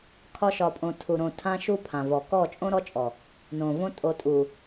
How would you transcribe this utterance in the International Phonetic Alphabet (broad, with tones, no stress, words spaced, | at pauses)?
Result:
kʰɒ˦ ʃɒ˨pʼõ˨ tʰu˨ ɾõ˨ tʰã˦ʃu˦pʰã˨vɔ˨ kɔ˦˨ t͡ʃʼõ˦ɾɔ˦t͡ʃʼɔ˨ | nõ˨ võ˦ tʼo˨tʼu˨